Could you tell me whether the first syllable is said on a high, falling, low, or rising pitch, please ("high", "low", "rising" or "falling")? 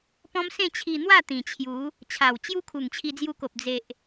high